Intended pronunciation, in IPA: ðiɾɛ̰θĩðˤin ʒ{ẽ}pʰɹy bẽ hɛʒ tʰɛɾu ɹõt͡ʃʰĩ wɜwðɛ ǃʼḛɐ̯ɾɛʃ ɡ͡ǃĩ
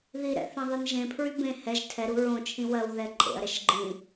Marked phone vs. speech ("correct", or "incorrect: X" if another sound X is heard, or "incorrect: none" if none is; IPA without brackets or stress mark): correct